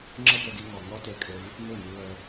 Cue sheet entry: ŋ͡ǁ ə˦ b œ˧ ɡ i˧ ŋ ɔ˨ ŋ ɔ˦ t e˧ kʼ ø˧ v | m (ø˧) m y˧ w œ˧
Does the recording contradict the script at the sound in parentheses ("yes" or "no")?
yes